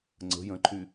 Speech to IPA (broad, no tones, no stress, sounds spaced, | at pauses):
ŋ͡ǀ ə̤ j ə̃ ǃʰ y